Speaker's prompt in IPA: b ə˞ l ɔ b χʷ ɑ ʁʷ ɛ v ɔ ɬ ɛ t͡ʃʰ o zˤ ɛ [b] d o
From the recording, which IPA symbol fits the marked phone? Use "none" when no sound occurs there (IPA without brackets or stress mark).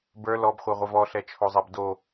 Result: b